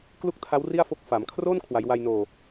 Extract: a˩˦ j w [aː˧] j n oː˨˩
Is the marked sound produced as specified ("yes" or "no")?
no